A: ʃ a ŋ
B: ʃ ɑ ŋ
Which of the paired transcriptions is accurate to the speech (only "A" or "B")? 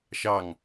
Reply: B